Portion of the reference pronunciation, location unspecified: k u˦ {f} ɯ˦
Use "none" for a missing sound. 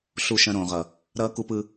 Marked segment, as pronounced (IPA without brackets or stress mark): p